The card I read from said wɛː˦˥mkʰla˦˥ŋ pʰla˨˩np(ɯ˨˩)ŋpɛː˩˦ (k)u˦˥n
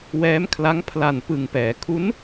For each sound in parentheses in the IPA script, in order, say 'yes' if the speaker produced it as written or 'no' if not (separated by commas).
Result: yes, no